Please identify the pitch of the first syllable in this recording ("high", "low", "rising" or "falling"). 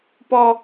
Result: high